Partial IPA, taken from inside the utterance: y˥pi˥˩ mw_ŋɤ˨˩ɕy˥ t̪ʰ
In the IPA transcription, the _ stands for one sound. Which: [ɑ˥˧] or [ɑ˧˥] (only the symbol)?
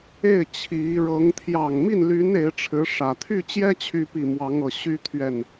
ɑ˧˥